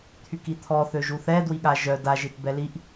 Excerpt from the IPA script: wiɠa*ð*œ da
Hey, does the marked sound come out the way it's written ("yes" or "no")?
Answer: no